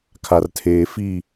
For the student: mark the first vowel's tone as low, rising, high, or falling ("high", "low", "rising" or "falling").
low